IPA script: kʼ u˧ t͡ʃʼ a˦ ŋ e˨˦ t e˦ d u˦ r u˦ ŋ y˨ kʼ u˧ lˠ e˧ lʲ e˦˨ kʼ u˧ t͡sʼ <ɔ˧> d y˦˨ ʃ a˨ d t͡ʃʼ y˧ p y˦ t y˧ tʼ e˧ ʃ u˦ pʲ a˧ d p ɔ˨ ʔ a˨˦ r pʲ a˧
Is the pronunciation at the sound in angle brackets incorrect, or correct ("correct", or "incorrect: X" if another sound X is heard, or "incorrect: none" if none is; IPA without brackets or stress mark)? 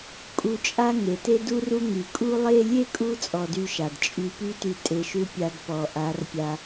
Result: correct